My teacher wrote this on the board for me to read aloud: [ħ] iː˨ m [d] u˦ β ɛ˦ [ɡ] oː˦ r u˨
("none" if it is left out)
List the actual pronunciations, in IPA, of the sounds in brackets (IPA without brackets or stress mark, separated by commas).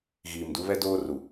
ɣ, d, d